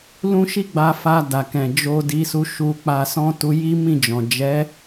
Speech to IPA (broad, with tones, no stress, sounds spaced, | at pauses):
l ũ˦ ʃ i˦ ɡ͡b a˧ f a˧ d a˨ k ɛ̃˨ d͡ʒ o˧ d i˧ s u˧ ʃ u˧ k͡p a˧ s ɔ̃˦ t u˧ j i˦ m ĩ˦˨ d͡ʒ ɔ̃˨ d͡ʒ ɛ˨˦